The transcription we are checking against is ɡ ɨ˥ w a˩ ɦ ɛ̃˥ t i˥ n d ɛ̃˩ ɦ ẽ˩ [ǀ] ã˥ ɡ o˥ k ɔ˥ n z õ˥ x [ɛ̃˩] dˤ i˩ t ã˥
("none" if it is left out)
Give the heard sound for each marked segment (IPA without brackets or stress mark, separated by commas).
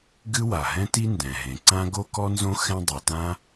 ǀ, ɛ̃˥